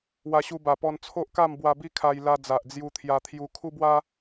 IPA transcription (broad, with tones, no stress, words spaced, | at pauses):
wa˧ɕu˧ba˨˩pɔ˧n t͡sʰo˦ʔka˥˧mbwa˧ bi˦kʰa˧j la˧d͡za˨ʔ d͡zju˧t̪ʰja˧t̪ʰju˧ kʰu˦bwa˦